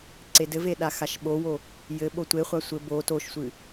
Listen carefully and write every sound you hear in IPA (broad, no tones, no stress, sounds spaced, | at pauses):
ǀ e d ɘ v e ɗ a x a ʃ ɓ o w o | j ɘ ɓ o tʷ e χʷ a sʷ ɘ b o t o ʃ sʷ ɨ